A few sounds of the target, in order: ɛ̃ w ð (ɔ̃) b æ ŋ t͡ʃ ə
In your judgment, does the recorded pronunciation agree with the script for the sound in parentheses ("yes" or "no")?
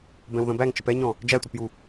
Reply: no